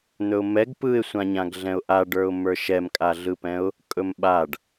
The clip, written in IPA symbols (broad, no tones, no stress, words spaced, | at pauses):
n̪ɵʊ̯mɛɡ pɯɪ̯sʷãɲãɡɮɛ̃ʊ̯ ʔaɖə˞ʊ̯mə˞ ʃɛmkʼaɮɯpɛ̃ʊ̯ | kʼɵmɓaɖ